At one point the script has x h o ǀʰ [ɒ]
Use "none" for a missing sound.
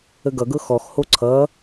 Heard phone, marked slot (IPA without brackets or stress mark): ʌ